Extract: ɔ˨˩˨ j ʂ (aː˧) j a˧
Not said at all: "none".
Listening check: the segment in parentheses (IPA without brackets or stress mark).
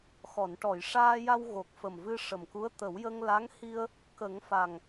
aː˧